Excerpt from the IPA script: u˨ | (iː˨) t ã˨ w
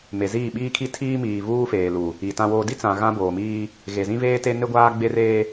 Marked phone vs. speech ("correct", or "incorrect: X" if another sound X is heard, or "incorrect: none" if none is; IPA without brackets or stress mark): incorrect: i˨